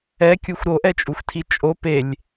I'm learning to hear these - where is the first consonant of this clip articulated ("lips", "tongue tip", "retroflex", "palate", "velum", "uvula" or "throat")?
velum